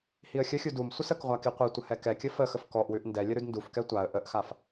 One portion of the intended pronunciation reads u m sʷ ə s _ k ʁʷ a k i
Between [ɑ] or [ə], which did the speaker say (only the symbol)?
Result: ə